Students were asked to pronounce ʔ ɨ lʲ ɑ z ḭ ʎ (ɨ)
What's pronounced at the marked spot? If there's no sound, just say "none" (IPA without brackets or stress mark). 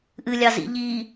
i